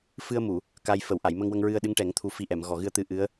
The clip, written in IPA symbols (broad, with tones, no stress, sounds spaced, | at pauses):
f ɨ˧ ə̯ m u˨˩˨ | k a˧ j f ə˨˩˨ w ʔ a˨˩˨ j m ə˧ ŋ w ə˧ ŋ ɹ ɨ˧ ə̯ ɗ ɨ˧˥ ŋ ʈ ɛ˨˩˦ ŋ t̪ʰ u˨˩ f i˧ ʔ ɛ˨˩˨ m ɣ ɔ˨˩ ɣ ɨ˧ ə̯ t̪ ɨ˧ ʔ ɨ˧˥ ə̯